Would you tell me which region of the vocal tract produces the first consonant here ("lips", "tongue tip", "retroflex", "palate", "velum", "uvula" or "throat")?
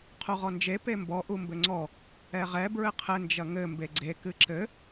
uvula